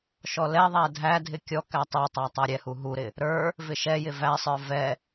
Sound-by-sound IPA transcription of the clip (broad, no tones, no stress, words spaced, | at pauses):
ʃɔlɛðˤæ dʱædʱɪ kʲɔ kætˤə˞tˤæ tˤæɾʲɛhu ɦuɾɪ | ɾə˞ | vɪʃɛjɪ væsˤə˞ vɛ